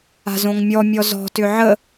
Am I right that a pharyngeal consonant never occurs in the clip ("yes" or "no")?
no